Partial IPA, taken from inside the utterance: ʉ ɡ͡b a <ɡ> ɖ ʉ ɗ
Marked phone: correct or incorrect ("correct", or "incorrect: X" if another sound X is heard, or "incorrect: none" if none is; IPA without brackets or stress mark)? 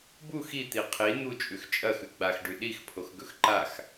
incorrect: x